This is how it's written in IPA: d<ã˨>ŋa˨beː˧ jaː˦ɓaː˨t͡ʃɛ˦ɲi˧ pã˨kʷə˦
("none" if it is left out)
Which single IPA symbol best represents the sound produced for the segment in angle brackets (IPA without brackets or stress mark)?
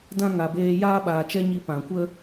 ã˦